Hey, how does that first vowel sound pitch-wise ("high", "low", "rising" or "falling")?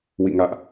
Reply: falling